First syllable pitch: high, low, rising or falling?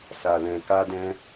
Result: low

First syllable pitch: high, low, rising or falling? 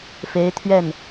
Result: rising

